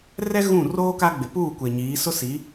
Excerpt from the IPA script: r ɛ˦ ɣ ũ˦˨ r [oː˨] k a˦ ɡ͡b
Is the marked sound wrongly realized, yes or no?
yes